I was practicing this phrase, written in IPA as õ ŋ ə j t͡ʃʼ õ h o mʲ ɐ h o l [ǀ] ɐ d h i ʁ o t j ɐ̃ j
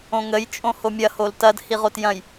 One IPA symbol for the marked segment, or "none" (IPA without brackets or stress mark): t